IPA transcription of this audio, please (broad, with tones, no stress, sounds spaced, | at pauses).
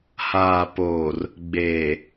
h aː˨ p oː˨ r | ɡ͡b eː˨